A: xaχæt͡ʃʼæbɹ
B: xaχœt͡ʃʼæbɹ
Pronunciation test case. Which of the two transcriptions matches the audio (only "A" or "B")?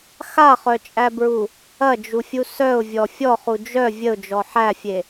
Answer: B